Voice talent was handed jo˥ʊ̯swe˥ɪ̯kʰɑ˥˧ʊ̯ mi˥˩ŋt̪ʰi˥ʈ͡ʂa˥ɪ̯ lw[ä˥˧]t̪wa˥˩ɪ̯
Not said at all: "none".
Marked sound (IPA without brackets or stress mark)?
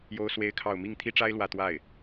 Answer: ä˥˧